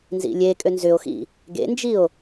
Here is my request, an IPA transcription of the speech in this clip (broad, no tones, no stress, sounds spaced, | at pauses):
n z ḭ lʲ e kʼ ø n z ʏ o̯ x ḭ | ɡ ḛ n d͡ʒ i o̯